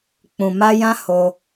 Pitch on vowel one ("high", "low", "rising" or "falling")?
low